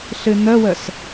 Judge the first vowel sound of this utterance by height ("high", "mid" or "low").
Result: high